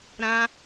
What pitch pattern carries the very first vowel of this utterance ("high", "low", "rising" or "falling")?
high